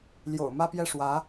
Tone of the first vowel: low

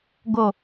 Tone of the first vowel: low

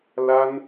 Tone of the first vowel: high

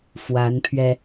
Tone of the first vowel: rising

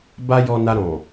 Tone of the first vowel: high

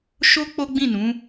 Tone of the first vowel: high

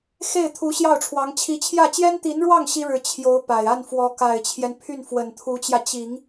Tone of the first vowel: falling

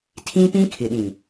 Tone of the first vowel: high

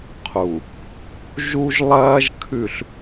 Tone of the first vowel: low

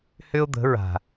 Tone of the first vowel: high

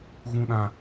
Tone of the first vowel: low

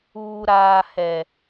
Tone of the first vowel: low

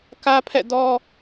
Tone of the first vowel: high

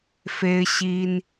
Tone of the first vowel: high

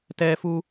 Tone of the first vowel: high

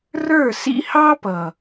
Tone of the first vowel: falling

